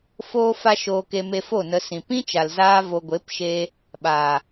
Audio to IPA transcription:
foː˦fa˦ʃoː˧k e˧me˧fo˦˨ nə˧sĩ˨ pĩ˦t͡ʃa˨lzaː˧ vo˨ɡʷe˨˦pʃeː˧ | ɓaː˨

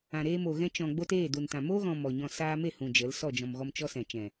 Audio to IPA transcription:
ã˨ɾeː˧mo˨ ɣɛ̃˧t͡ʃɔ̃˨ɡ͡bo˧t eː˦˨du˨ntã˨ mo˦ɣɔ̃˨ mɔ˨ɲɔ̃˧ saː˧me˦˨ hũ˨d͡ʒə˨˦l sɔ˦˨d͡ʒɔ̃˨mɣɔ˧m t͡ʃɔ˦sɛ̃˨ t͡ʃɛ̃˨

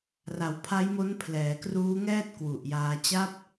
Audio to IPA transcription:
ra˩˦wpʰa˦˥jmo˦˥n pʰlɛː˩˦kruː˦˥ŋɛː˥˩t̚ kwu˨˩ʔjaː˧ t͡ɕa˦˥p̚

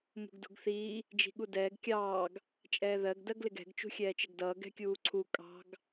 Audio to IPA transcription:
mṳɡdṳɡθiː | d͡ʒi̤ɠudɛːɡ kʲɑːɡ | t͡ʃʼɛːðɜɡ dɜɡlɪɡɛ̤ɡ t͡ʃṳxʲɛːt͡ʃɪɡdʌː ɡɛ̤kʲuːǀʰu kʼɑ̤ɡ

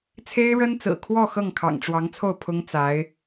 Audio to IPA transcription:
t͡sʰe˥ɪ̯ɻə˥nt͡sɹ̩˨˩kʰwɔ˥˧ xɤ˥˩ŋkʰɑ̰˨˩ŋʈ͡ʂwɑ˧˥ŋt͡sʰo˥˩ʊ̯ pʰʊ˥ŋt͡sa˧˥ɪ̯

